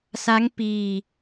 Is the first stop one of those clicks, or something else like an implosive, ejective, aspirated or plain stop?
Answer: plain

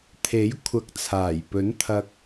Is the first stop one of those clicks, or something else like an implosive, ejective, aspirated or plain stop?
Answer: aspirated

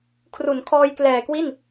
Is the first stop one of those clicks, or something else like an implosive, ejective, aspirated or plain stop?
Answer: aspirated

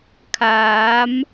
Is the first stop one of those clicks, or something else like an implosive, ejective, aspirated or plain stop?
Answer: aspirated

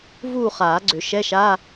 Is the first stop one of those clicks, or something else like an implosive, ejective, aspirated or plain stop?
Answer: click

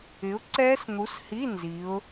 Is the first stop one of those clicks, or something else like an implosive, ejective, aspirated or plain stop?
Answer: click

